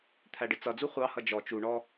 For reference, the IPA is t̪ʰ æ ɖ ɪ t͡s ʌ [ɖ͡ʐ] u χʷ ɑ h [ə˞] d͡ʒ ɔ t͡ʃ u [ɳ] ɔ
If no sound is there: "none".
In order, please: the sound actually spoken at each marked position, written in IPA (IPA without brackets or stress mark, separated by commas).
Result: d͡z, ʌ, ɳ